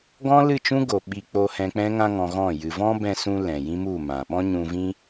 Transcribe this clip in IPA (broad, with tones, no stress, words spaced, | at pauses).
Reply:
ɡɔ̃˦lɨ˦˨t͡ʃũ˦ ɡo˨ ɓi˧k͡po˧ hɛ̃˧k͡pɛ̃˦ŋã˦ ŋɔ̃˧ɣɔ̃˦˨jɨ˧ vɔ̃˦bɛ̃˧sũ˧ lɛ̃˨jĩ˦mu˦˨mã˨ ɓɔ̃˦ɲũ˧vĩ˦